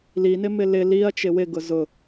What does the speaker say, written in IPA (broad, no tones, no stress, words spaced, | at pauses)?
li nɪmɪlɪ liɐ̯ t͡ʃɪwɪ ɡʊzʊ